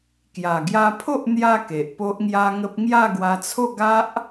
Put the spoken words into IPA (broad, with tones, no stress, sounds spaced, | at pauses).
k j a˨˩ ɡ j a˧ pʰ o˦ ʔ n̪ j a˧ k e˨ ʔ p o˦ ʔ ŋ j a˦ ŋ ə˦ p̚ ŋ j a˥˧ ɡ w a˧ t͡sʰ o˥˧ ɡ a˦ ʔ